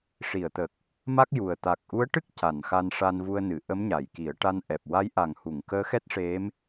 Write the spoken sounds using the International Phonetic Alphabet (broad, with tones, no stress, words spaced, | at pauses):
ʂi˨˩˨ə̯t̪ə˨˩k̚ | ma˦˥k̚ju˨˩ə̯ t̪a˨˩k̚ʔu˧˥ə̯ʈɨ˦˥k̚ ca˨˩˨nxa˧nʂa˧n vu˧ə̯nɨ˨˩˨ ʔə˧˥mɲa˨˩˨jki˨˩˦ə̯ʈa˧n ʔɛ˨˩p̚ wa˧˥jʔa˨˩ŋhu˨˩˨ŋ kəː˧˥xɛ˦˥t̚ʂe˧˥m